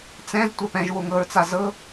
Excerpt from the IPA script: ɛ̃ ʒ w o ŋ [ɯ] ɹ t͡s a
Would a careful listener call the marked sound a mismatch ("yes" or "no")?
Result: yes